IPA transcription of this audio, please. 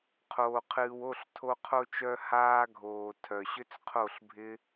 qʰoː˧qʰɨː˧w o˦˨ɬtʰo˧qʰo˧t͡ʃœ˧ haː˧ɡʱoː˨ tʰœ˨ɕʏ˦t͡sqʰo˦˨ɬbʱɪ˦

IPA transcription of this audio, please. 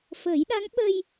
fəː˨˩˦jɗa˧˥ŋ ɓə˧j

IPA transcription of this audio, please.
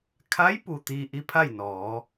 kʰa˧˥jpu˩ t̪iː˧ʔi˧˥pʰa˥˨j nɔː˩˧

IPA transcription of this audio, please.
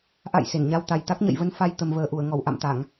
ʔa̰˧˨j se˧˩nɲa˧w t̪a˨˩j t̪a˦˥k̚ɲə̰˧˨jvə˧n fa˧j t̪ə˨˩mvəː˨˩ʔu˧˩ə̯ŋɔ˧˩w ʔa̰˧˨mt̪a˧˩˨ŋ

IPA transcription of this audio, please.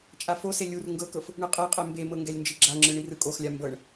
t͡ʃʼafose lʲur ŋɡɤkɤf | ɳɯqʼɛqʼɛ mbemɤ ŋɡɛlʲnd͡ʒiɡ͡ǁaŋ͡ǁɯ ɳirɯkʼoxlʲa mbɤɳ

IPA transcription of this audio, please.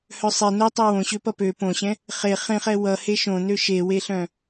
hœsˤe notˤø wõɕøpʌ pø põɕɛ̃ | χe χẽχɛ wʌhe ʃõnø ʃeweɬœ̃

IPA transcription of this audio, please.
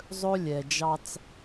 zˤɵ˦ lʲɛ˨d͡ʒɑ˦t͡s

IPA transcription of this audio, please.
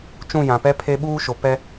t͡ʃũ˦˨jã˨pɛ˦pʰe˦ ɓuː˦ʃo˨ pɛ˦

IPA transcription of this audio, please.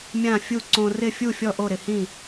mʲã˥˨fʲu˥˨ ǀõ˧rɪ˥˨ fʲu˥˨fʲɔ˥˨ ʔo˥˨ɾɪ˧hĩ˥˨

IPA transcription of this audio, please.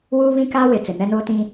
wuː˦ βĩ˦ka˦ wɪ˨ t͡sɪ˨nɛ˦noː˦tĩ˦

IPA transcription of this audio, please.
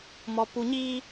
mɔ˨ pu˨ɲiː˧

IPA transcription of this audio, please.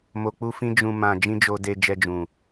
mo˧k͡pu˦fĩ˦ d͡ʒũ˧ mã˧ d͡ʒĩ˦d͡ʒo˧de˧ d͡ʒɛ˧d͡ʒũ˨

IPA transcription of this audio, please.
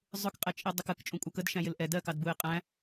zˤʊkqʼɛt͡ʃʼi dˤəkək t͡ʃʼũkʷʼʌkəd ʃæ̃jɪlʔɛ dɜkɑd buɪ̯qʼæ̃

